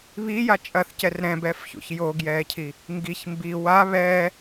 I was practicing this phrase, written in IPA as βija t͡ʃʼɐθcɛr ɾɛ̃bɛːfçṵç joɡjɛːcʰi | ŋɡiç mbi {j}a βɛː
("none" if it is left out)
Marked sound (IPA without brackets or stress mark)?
w